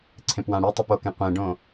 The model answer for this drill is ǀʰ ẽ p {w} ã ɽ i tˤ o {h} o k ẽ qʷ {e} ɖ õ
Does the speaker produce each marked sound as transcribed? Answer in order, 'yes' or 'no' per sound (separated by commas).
yes, no, no